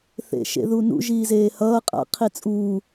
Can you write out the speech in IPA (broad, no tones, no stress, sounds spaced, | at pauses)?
θ ḛ ʃ ḛ ð u n ṵ ʒ iː z eː h ʌː qʼ a̰ qʰ i t͡sʼ uː